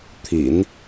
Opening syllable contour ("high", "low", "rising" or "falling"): low